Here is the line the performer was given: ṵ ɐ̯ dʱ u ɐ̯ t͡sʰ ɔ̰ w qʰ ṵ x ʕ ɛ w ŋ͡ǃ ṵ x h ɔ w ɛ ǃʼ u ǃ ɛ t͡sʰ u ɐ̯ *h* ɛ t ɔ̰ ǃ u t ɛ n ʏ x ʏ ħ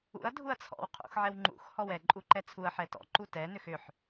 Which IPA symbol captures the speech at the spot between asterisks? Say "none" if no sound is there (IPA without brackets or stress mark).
ħ